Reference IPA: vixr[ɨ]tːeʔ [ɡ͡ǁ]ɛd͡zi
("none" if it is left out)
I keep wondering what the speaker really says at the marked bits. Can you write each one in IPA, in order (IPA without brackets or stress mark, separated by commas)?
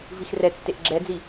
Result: ɛ, ɡ͡ǁ